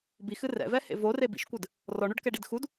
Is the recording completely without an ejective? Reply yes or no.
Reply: yes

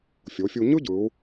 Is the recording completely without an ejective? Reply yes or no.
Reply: yes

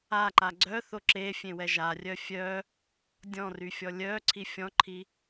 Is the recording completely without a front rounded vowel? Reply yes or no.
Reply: no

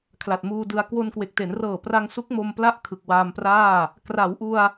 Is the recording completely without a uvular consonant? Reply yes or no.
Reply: yes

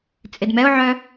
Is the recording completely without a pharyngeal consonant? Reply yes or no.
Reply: no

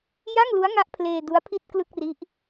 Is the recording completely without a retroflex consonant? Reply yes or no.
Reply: yes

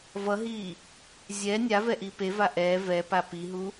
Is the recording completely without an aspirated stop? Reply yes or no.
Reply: yes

